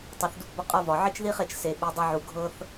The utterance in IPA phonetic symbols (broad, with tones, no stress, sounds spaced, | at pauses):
tˤ e˨ θ d u˧ p b ɒ˧ qʼ ɤ˧ v ɒ˨ ʕ i˦ t͡ʃ ð i˦ χ e˦˨ t͡ʃ s e˧ ɓ i˧ dˤ ʌ˦ ʕ u˧ ɡʱ ɤ˦ θ